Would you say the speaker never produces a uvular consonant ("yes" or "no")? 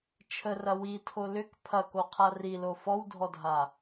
no